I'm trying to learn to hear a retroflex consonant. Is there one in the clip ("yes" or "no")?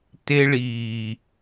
yes